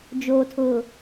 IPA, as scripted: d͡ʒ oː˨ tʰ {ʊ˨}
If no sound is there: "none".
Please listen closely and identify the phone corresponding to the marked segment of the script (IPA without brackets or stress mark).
ʊ˨